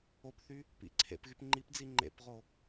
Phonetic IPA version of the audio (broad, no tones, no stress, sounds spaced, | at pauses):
o p θ y | p ḭ ǀʰ ḛ p ɣ y p ŋ͡ǃ i p d͡z i ŋ͡ǃ ḛ p ʁ o